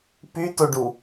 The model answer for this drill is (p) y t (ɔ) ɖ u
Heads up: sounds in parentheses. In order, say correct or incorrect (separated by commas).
correct, incorrect